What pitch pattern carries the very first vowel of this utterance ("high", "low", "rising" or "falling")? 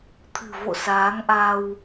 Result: low